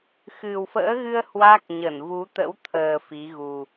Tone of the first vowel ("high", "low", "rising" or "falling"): low